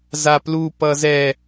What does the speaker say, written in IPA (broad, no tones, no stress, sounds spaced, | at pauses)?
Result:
z a p l u p ʌ z ɛ